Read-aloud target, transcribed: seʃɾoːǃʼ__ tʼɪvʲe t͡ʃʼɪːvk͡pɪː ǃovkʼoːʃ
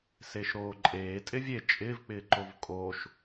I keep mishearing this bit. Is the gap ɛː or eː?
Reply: eː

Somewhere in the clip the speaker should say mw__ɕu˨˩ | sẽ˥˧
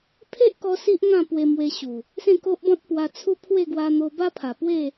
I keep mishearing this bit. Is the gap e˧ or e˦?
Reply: e˧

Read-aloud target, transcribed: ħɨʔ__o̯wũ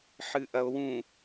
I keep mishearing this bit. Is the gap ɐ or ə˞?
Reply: ɐ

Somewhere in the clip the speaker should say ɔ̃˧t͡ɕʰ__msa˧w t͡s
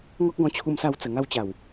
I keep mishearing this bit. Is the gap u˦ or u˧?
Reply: u˧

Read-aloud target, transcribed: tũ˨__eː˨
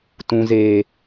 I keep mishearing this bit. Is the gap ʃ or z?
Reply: z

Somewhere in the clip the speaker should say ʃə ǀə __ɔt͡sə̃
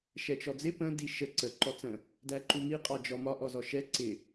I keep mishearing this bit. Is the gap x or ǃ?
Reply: ǃ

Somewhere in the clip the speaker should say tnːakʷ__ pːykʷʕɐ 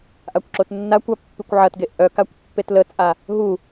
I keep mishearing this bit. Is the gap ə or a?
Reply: a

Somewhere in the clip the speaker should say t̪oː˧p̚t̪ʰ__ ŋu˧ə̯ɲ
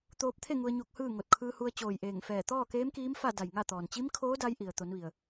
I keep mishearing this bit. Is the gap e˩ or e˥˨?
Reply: e˥˨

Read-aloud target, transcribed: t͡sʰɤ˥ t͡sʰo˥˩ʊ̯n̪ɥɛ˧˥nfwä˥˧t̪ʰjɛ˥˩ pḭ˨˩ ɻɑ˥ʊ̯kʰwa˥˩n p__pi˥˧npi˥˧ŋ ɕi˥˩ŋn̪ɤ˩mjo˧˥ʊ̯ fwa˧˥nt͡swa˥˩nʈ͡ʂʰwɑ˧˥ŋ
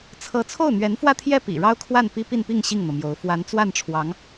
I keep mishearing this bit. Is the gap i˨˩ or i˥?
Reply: i˥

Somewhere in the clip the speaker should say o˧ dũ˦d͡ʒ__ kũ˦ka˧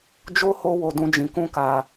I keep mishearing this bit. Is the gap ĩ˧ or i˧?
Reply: ĩ˧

